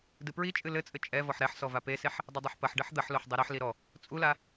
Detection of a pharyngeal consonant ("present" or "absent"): present